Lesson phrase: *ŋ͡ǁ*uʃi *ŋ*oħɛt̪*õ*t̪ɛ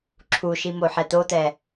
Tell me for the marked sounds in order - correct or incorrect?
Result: incorrect, incorrect, incorrect

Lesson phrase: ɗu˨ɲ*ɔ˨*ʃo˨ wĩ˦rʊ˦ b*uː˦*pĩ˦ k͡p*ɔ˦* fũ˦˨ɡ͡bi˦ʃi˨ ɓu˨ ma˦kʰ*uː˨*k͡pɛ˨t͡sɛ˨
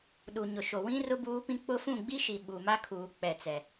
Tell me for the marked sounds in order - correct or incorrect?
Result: incorrect, correct, incorrect, correct

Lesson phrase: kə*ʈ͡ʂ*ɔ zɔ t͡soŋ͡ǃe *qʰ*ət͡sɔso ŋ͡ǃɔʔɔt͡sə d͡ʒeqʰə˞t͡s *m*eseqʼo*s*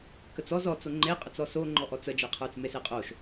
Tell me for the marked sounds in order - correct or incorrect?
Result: incorrect, incorrect, correct, incorrect

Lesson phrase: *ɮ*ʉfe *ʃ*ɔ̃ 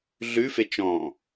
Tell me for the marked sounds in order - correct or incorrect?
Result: correct, incorrect

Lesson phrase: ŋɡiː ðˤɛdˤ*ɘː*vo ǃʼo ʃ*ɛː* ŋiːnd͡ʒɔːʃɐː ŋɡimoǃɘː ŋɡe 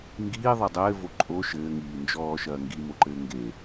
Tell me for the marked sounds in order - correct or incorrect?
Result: correct, incorrect

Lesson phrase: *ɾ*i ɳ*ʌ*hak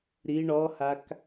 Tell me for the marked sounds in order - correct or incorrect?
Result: correct, incorrect

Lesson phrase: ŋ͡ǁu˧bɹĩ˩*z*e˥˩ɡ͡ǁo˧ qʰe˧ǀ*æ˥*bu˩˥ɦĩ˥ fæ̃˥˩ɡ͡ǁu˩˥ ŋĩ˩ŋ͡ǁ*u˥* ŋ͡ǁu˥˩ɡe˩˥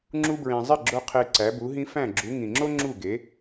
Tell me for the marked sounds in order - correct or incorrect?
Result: incorrect, incorrect, incorrect

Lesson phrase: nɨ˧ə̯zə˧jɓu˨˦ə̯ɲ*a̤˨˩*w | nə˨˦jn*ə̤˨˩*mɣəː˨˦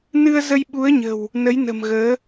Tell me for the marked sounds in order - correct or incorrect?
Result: incorrect, correct

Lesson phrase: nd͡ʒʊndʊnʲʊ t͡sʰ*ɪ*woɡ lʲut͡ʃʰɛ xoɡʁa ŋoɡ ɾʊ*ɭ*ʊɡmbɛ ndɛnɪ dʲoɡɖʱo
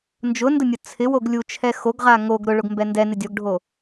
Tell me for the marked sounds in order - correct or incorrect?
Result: correct, correct

